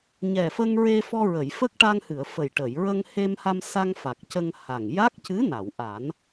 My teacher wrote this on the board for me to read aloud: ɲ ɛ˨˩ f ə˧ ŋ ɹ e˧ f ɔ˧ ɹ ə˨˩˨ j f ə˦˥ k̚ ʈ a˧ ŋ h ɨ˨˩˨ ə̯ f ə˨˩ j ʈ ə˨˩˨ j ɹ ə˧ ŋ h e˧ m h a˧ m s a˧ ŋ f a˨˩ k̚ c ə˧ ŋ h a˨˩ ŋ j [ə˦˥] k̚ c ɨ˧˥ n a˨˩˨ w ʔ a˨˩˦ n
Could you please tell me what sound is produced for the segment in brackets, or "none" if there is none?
a˦˥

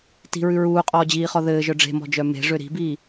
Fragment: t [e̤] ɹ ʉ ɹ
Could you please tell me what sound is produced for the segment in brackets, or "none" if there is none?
i̤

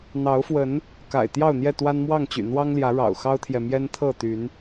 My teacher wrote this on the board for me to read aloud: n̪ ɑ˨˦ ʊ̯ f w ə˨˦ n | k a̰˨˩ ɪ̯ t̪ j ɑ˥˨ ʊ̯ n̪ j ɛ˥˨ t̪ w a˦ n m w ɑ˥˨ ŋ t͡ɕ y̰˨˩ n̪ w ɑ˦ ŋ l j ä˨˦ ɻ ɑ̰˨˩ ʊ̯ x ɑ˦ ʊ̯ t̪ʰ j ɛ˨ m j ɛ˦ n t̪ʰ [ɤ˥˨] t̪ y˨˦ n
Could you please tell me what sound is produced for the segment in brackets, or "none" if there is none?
ɤ˥˨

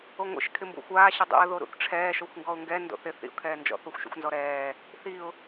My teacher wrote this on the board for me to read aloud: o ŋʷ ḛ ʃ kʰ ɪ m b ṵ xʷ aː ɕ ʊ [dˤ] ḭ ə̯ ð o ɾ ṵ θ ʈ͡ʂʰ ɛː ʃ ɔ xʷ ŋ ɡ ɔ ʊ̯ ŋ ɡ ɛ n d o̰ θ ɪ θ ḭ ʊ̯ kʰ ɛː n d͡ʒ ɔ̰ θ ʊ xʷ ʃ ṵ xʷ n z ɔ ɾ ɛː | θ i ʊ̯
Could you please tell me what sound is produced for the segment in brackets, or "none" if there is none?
dˤ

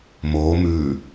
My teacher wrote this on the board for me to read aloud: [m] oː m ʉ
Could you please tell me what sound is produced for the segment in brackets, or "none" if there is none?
m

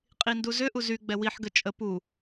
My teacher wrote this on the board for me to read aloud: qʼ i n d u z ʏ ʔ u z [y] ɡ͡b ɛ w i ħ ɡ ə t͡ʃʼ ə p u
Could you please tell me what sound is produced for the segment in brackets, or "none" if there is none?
y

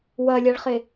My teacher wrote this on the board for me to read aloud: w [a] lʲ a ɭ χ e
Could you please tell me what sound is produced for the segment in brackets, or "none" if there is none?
ɐ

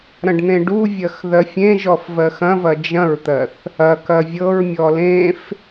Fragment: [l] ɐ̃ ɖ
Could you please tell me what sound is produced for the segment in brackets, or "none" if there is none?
ɾ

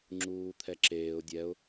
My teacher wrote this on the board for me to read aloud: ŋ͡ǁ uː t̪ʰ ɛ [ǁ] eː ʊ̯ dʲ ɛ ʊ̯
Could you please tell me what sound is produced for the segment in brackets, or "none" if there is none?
ǁ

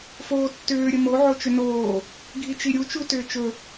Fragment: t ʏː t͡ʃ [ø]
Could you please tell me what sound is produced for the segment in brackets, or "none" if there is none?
ɵ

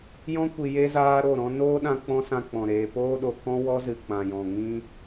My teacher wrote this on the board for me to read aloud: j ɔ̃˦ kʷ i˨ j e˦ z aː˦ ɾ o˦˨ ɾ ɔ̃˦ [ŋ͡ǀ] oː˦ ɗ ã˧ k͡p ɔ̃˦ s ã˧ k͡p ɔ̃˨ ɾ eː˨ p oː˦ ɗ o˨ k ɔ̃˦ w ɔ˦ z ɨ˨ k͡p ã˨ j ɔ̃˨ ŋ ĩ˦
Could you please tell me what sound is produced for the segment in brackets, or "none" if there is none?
n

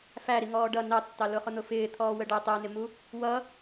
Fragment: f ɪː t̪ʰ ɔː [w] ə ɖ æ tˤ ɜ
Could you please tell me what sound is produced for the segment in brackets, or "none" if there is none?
w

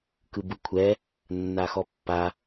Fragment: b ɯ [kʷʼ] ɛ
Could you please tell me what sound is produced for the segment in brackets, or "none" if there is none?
kʷʰ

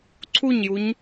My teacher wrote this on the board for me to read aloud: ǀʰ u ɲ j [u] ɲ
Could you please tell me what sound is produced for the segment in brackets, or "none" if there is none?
u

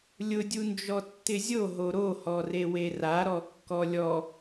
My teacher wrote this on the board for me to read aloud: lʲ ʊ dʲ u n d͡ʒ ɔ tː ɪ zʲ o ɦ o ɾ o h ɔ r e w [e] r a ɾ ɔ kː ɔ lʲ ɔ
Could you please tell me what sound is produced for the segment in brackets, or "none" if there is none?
e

